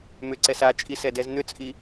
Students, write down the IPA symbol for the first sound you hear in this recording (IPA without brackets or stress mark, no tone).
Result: m